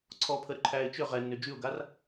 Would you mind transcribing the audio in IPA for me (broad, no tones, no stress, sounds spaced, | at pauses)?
ǀʰ ɔ pʰ ə ɾ ʏ ǃʰ æː ɪ̯ t͡ʃ ʏ ʁ ɛ nː ʏ d͡ʒ y ʊ̯ ɡ a r